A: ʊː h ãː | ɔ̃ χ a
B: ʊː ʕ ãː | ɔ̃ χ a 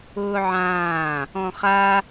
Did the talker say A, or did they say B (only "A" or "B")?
B